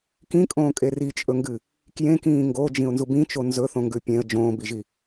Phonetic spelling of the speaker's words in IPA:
k ĩ kʼ õː kʼ e r i t͡ʃʼ ɵ ŋ ɡ ɨ | k j ẽ k ĩː ŋ ɡ o d͡ʒ ĩ ʊ̯ n z u b ĩ t͡ʃ o n z ɵ θ õ ŋ ɡ ʉ pʲ ẽ ə̯ d͡ʒ õː b i ʒ i

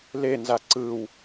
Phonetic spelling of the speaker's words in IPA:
l e n z a ǀ ɯ w

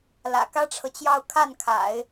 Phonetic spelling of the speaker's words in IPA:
l ä̰˨˩ k ä˥ ʈ͡ʂʰ ɤ˨ t͡ɕ j ɑ˥˧ ʊ̯ kʰ a˥˩ n kʰ a̰˨˩˦ ɪ̯

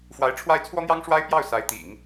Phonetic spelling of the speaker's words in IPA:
f w a˧˥ ɪ̯ ʈ͡ʂʰ w a˥˩ ɪ̯ t͡sʰ w ɔ˥ n̪ j ɑ˥ ŋ ʂ w a˥ ɪ̯ p j ɑ˥˩ ʊ̯ s a˧˥ ɪ̯ t̪ ḭ˨˩˦ ŋ

